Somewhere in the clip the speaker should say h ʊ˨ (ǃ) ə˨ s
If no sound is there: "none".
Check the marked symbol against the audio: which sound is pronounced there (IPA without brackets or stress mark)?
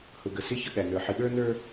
ɡ